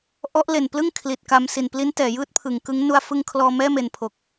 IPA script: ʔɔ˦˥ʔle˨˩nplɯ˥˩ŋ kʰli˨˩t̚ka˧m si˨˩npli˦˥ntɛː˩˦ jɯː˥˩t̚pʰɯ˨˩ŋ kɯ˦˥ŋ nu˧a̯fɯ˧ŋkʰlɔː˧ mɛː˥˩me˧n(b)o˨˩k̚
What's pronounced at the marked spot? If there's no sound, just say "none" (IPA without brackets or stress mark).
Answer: pʰ